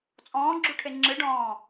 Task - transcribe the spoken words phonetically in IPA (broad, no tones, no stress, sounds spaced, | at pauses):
t͡sʼ ɔ̃ː ɡ͡ǁ u ʈʰ e ŋ͡ǁ ɨ ɖ ɔ̃ː